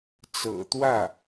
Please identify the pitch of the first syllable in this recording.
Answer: low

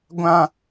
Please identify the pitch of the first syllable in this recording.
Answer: high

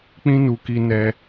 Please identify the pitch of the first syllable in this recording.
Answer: high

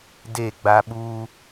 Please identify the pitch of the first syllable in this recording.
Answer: falling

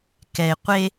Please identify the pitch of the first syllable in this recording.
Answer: low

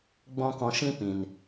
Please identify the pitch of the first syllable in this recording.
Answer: high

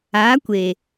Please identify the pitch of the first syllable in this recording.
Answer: rising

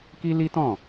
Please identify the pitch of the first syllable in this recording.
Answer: high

